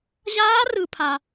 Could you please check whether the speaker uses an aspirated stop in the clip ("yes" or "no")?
yes